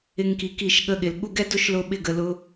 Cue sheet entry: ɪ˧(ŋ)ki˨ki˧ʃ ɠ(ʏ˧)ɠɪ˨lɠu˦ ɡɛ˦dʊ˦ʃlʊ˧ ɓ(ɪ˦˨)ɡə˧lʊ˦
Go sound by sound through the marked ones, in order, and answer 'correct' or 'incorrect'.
correct, incorrect, correct

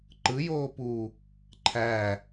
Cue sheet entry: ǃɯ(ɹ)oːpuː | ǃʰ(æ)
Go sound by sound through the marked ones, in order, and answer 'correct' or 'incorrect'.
incorrect, correct

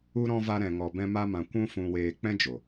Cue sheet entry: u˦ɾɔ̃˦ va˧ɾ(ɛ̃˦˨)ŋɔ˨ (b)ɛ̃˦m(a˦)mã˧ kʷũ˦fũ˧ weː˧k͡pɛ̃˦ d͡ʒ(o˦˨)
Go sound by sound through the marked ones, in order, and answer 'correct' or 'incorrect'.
incorrect, correct, correct, incorrect

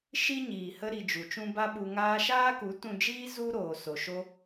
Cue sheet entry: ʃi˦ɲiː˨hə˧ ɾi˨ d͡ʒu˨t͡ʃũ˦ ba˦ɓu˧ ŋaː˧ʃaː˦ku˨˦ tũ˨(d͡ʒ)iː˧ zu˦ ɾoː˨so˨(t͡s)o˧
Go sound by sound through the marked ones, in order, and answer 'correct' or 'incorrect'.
correct, incorrect

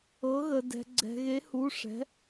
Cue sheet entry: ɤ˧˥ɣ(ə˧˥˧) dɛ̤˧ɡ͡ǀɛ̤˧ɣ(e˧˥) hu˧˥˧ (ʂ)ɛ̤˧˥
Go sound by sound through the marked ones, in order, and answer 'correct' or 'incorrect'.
incorrect, correct, correct

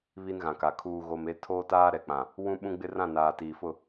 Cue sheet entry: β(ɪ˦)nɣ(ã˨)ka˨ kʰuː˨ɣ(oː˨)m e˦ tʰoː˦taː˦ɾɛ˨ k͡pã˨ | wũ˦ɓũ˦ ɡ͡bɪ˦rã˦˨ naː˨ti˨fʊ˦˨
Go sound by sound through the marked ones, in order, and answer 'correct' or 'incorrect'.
incorrect, correct, incorrect

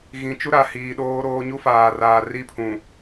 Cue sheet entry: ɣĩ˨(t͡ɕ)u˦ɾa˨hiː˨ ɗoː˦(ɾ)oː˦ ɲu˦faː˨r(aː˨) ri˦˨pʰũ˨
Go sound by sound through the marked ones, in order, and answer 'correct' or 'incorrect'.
incorrect, correct, correct

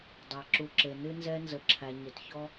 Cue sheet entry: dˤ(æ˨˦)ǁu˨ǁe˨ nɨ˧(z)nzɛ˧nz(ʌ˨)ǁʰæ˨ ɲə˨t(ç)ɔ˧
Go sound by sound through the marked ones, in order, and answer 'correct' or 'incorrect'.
incorrect, incorrect, incorrect, correct

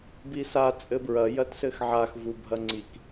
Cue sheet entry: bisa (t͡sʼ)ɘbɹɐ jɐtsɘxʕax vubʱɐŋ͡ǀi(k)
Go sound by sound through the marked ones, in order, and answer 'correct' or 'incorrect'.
correct, correct

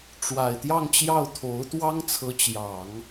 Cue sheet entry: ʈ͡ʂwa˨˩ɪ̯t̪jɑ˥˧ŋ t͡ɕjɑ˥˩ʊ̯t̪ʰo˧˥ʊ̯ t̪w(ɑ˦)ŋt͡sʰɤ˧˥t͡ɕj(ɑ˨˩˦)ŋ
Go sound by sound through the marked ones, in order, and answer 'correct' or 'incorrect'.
incorrect, correct

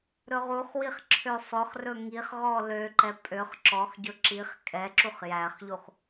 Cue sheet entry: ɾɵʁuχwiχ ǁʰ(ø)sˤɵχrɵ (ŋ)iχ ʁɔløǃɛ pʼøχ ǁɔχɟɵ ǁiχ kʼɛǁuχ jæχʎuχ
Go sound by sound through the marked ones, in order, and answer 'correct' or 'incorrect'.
correct, correct

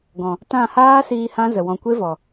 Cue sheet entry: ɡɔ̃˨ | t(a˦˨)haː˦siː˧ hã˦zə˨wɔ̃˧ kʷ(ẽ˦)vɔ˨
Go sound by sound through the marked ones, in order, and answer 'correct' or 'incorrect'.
incorrect, incorrect

